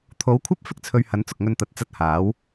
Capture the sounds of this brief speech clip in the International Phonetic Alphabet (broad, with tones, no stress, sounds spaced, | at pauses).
t̪ʰ o˨˥ w kʷʰ ɐ˥ p̚ f ɪ˥ k̚ t͡sʰ ɵ˨ ɥ h ɐ˨˥ n t͡s ʊ˨ k̚ ŋ ɵ˧ n t̪ ɐ˨˥ t̚ t͡s ɐ˧ t̚ h aː˨˥ w